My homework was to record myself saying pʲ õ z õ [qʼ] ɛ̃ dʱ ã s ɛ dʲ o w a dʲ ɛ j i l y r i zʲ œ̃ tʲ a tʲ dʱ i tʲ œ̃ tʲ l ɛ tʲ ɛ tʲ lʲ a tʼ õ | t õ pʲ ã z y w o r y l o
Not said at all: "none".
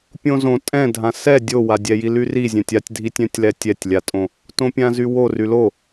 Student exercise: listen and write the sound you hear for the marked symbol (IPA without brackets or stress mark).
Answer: tʼ